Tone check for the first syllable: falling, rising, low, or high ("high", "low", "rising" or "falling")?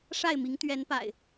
falling